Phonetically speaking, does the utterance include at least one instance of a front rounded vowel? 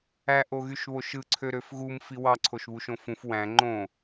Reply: yes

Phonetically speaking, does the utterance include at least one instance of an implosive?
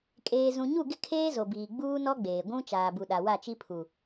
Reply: yes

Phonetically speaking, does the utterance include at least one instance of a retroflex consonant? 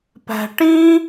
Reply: yes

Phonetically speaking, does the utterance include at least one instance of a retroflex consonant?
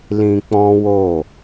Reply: no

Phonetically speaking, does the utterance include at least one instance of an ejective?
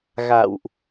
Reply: no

